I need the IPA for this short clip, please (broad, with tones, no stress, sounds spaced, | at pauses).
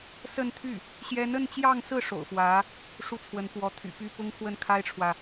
s ə˥˧ n t̪ʰ y˥˩ | ɕ j ɛ˧˥ n ə˥˧ n t͡ɕ j ɑ˥˧ ŋ s ɹ̩˥˩ ʂ o̰˨˩ ʊ̯ f w ä˧˥ | ʂ u˥˩ t͡sʰ w ə˧˥ n p w ɔ˧˥ t̪ʰ y̰˨˩ p y˥˩ p ʊ˥ ŋ kʰ w ə˥˩ n kʰ a˥ ɪ̯ ʈ͡ʂʰ w ä˨